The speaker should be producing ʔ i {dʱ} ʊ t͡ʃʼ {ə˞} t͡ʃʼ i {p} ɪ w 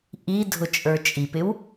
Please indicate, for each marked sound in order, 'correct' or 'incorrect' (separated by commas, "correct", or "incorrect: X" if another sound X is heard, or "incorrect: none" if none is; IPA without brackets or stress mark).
correct, correct, correct